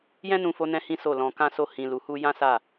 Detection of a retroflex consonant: absent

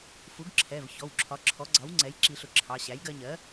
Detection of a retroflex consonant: absent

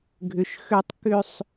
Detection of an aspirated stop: absent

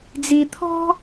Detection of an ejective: absent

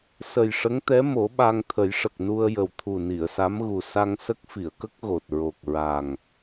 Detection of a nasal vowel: absent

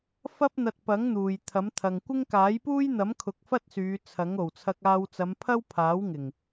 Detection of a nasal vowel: absent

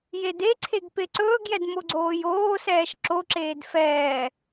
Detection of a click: present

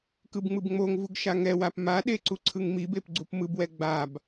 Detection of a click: present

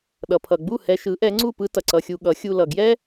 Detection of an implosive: present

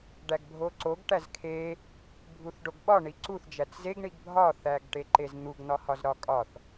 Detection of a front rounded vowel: absent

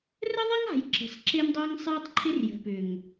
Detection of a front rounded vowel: present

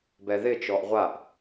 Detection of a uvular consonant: present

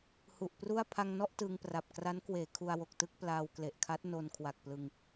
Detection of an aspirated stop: present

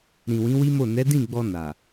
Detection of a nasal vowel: present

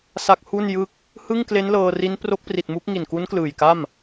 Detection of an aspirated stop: absent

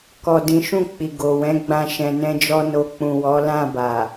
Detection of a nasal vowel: present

